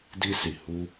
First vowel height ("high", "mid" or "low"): high